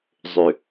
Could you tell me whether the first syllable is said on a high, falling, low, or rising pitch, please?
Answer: low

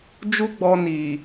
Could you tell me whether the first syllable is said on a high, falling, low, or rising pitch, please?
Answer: high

